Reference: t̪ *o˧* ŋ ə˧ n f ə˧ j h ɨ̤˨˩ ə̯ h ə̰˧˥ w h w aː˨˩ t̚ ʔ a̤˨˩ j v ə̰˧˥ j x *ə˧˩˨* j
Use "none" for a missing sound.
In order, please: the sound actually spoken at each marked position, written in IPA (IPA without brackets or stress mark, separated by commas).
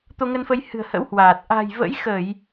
o˧, ə˧˩˨